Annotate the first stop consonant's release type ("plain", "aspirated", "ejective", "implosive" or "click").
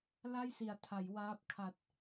aspirated